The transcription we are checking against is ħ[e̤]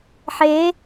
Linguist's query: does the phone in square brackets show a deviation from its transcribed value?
yes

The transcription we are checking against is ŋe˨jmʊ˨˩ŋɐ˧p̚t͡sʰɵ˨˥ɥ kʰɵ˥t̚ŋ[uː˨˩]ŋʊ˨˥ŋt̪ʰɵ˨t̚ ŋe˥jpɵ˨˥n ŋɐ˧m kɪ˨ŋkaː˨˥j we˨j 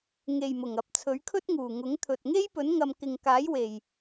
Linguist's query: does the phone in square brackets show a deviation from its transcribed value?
no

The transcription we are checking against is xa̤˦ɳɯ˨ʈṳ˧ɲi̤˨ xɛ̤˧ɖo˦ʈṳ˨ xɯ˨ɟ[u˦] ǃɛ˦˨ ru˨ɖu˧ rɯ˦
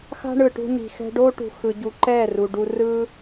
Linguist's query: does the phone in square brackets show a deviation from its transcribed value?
yes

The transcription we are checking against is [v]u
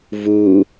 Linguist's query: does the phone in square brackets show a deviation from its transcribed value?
no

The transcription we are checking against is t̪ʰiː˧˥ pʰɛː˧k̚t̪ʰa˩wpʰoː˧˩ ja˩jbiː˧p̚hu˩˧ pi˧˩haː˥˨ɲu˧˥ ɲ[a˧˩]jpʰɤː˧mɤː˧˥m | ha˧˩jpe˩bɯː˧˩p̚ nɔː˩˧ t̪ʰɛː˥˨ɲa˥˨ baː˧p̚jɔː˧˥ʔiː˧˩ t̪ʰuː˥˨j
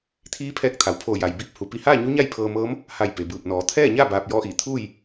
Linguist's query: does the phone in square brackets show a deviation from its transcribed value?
yes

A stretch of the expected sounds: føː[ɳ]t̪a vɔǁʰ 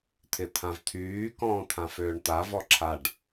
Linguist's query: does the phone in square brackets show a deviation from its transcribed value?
no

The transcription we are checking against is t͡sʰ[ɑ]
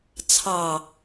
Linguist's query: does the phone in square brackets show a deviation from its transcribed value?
no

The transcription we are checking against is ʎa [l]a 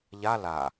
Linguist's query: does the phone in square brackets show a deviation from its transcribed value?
no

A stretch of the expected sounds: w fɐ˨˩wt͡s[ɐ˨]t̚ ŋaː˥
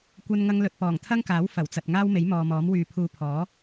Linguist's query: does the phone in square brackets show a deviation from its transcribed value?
no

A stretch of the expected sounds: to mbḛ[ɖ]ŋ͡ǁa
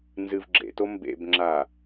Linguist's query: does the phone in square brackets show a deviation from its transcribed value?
yes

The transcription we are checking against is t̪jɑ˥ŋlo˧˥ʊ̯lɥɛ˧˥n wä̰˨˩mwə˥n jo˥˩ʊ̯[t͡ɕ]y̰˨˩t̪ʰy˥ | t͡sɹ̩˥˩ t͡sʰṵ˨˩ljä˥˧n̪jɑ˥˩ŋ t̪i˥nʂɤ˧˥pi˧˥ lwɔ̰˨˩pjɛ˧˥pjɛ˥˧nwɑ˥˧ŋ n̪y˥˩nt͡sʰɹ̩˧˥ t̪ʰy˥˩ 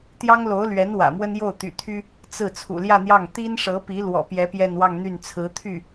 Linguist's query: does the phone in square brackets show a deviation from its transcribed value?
yes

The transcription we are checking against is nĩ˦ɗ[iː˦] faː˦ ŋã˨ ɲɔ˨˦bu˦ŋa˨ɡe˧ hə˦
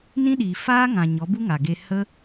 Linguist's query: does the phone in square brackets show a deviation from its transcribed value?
yes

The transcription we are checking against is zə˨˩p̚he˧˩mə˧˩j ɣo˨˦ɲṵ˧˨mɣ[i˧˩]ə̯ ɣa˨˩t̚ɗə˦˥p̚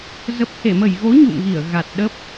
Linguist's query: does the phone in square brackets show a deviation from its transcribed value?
no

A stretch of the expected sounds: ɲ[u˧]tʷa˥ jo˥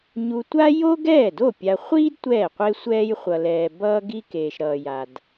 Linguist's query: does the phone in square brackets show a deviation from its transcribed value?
no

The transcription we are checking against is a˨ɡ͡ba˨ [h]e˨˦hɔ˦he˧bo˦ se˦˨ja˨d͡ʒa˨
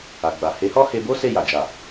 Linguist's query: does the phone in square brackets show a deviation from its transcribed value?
no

